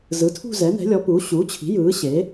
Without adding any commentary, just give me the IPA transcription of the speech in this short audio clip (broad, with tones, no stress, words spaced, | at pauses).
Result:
zɯ˩˥tʰṳ˥˧ zɛ˩˥nɛ̤˩˥lʲɔ˩˥puː˩˥ ɕuː˩˥t͡ɕʰi̤˩˥ jɯː˩˥ɕe˩˥